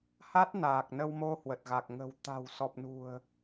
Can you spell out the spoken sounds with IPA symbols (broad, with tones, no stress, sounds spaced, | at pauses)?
h a˦˥ t̚ n aː˨˩ k̚ n ə˧ w m o˧ h w ə˨˩ t̚ ɣ a˨˩ k̚ ŋ ə̤˨˩ w t̪ a̤˨˩ w s ɔ˨˩ p̚ n ṳ˨˩ ə̯